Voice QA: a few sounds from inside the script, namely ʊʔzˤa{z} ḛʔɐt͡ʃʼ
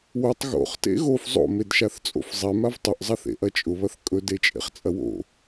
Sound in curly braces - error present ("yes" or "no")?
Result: yes